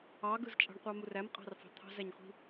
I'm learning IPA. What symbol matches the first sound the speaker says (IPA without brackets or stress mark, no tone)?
ɑ